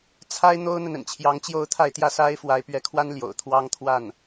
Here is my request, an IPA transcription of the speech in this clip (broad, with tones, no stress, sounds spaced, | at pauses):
t͡sʰ a˥ ɪ̯ n̪ o˥ ʊ̯ n̪ ə˨ n ə̰˨˩ n t͡ɕʰ j ɑ˧˥ ŋ t͡ɕ j o˥˧ ʊ̯ t̪ʰ a˥˧ ɪ̯ t̪ j ä˥˩ s a˥ ɪ̯ f w a˧˥ ɪ̯ p ɥ ɛ˧˥ kʰ w a˥ n l j o̰˨˩ ʊ̯ t̪ʰ w ɑ˥ ŋ t̪ʰ w a˥˩ n